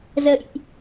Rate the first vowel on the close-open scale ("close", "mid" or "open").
mid